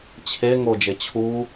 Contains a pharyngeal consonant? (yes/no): no